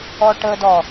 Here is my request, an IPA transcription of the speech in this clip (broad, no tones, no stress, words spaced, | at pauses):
ɔʈədɔ